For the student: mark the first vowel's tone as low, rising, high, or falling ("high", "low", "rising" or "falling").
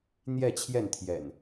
falling